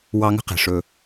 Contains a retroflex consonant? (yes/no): yes